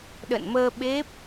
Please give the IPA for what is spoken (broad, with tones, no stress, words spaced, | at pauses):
ɗə̰˧˨nməː˧ ɓe˦˥p̚